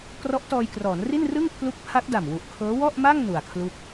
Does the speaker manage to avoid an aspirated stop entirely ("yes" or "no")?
no